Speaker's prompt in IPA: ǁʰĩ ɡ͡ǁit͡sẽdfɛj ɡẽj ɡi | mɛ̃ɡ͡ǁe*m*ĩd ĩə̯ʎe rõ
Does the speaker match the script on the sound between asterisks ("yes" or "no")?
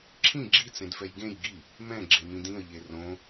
yes